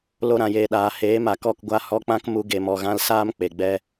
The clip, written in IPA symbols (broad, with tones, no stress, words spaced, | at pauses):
lo˧ɾã˨jeː˨ɗaː˨ heː˨˦ma˨kɔ˦˨k ɡʷa˧hɔ˧k͡pã˦k mu˧ɡe˨mɔ˨ɣã˧l saː˦mk͡pe˨ɡ͡bɛ˧